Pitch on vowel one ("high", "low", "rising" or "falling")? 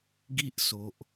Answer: high